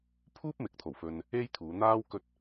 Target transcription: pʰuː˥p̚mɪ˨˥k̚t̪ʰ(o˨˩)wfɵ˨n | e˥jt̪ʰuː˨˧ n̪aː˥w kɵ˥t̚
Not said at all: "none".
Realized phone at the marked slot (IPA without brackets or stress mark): o˨˩